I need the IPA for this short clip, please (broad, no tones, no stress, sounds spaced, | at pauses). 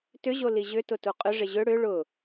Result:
t ʏ ʑ o l i ʑ ʏ t ʊ t u qʼ ʏ ʐ ɪ ʑ ʏ ɽ ʏ ɭ ʊ